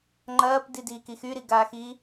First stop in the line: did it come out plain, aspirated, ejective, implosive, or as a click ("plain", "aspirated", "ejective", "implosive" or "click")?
click